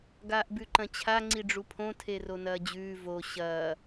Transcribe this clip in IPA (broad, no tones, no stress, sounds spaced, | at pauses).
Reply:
ɡ aː ʔ b ʉ ǃ ɐ̃ t͡ɕʰ a ŋ͡ǀ i ɖ͡ʐ u pʰ õ tʰ e r o n ɐː d͡ʑ ʉː v o ɕ ɐː